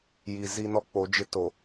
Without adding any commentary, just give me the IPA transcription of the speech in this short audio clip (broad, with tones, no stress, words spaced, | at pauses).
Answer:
ji˨zi˦nɔ˦ k͡po˨˦d͡ʒɪ˦to˨